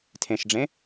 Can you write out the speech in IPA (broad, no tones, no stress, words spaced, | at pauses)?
tʰẽʃɖ͡ʐẽ